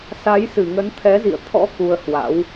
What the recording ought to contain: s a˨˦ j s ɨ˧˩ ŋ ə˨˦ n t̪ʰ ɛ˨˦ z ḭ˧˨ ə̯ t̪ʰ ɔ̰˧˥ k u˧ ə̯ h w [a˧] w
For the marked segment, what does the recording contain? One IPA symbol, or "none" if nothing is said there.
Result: a̰˧˥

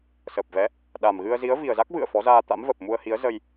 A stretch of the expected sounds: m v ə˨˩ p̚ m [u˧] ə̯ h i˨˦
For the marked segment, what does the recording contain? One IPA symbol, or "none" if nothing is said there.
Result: u˧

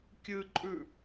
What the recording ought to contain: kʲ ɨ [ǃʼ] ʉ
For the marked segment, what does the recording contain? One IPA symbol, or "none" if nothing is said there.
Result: ǃʼ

